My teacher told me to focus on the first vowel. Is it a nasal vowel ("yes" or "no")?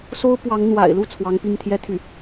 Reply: no